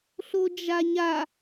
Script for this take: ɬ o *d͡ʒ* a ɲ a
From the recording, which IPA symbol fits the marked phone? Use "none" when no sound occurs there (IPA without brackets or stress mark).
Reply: d͡ʒ